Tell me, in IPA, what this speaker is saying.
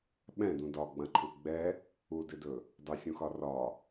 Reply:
ɓɛ̃dũ dɒɡ͡bɐ̃ǃʰu ɡ͡bɛ | udɪdɵ | dˤɵsʲũxɒ rɒ

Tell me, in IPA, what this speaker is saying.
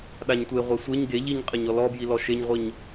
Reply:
ɗaɲtʷeʁʷe sʷeɲ ɡe ʎiɲqʼɘɲ ɔlɔbji lɔʃeɲʁʷiɲ

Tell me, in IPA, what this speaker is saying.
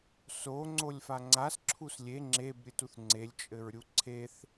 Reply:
so ŋ͡ǀolʲfaŋ͡ǀas ǁʰuslʲe ŋ͡ǁeb ɾʲɨtuθŋ͡ǀelʲ t͡ʃʼɘɹɾʲuǀʰeθ

